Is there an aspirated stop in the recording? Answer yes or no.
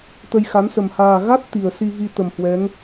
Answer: no